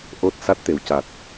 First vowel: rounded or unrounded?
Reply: rounded